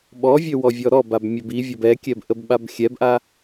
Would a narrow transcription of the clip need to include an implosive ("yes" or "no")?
yes